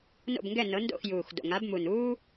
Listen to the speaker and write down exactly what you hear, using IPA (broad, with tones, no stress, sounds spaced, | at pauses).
n o̰˦˨ b ŋ ɡ ɛ˦˨ n ɤ˨˦ n d o̰˦˨ x j uː˨˩ x d o̰˨˩ ŋ a˨˦ b m u˨˩ n uː˥